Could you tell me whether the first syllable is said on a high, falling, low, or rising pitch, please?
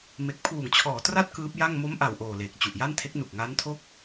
low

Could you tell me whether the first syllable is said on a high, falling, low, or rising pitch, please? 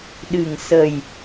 low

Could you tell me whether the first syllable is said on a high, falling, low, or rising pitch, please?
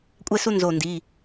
high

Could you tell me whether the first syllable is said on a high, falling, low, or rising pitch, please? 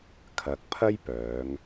low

